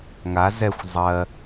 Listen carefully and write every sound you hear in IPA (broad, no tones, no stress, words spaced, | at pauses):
ŋa zɛxʷ zˤɜ